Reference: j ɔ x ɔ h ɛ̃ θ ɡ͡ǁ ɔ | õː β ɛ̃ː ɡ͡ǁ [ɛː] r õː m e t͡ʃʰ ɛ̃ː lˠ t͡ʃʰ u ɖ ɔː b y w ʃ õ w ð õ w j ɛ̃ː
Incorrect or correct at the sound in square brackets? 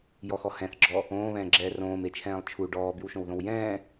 correct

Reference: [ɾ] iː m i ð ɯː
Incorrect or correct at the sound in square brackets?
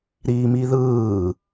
correct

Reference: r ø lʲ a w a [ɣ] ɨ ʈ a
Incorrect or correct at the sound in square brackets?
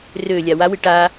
incorrect: w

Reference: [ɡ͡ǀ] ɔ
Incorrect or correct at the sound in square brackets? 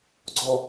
correct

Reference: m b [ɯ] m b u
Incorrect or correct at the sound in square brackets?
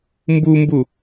incorrect: u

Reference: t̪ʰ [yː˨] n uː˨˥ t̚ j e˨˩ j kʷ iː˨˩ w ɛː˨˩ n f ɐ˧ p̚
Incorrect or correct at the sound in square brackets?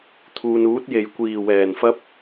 incorrect: uː˨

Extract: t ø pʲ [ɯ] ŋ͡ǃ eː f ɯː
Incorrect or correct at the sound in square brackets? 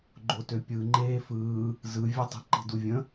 correct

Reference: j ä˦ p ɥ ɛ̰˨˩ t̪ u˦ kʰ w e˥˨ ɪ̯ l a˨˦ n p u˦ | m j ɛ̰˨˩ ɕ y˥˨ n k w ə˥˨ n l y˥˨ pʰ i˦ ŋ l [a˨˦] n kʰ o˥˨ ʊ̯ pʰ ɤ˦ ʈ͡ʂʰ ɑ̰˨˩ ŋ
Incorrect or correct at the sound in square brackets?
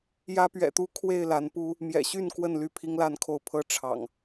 incorrect: a˥˨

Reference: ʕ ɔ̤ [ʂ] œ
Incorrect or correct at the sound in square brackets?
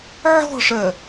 correct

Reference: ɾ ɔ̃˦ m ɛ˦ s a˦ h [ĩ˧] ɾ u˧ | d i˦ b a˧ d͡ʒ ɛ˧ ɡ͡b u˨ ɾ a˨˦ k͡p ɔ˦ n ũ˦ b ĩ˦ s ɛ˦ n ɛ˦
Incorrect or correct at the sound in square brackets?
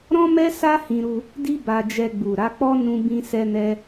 correct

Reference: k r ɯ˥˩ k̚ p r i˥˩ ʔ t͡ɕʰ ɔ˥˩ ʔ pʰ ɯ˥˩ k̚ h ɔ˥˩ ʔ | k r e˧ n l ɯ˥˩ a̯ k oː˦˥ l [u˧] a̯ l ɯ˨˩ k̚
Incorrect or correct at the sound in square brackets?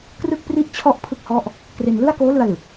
incorrect: ɯ˧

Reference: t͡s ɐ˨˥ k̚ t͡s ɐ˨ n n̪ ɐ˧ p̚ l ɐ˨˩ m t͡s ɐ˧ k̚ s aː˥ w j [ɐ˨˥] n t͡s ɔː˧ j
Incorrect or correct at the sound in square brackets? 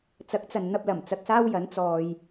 correct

